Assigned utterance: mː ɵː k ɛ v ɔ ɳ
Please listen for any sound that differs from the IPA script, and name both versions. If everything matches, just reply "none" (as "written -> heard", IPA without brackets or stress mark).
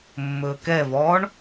none